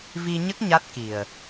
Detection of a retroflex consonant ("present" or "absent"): absent